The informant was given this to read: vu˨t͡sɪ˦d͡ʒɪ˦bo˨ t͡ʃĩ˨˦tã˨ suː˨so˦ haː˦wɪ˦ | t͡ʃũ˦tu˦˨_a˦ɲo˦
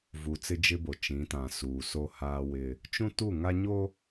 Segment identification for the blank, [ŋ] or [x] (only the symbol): ŋ